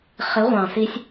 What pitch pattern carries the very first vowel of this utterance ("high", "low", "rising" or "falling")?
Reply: rising